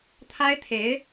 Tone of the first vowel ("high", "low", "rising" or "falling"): high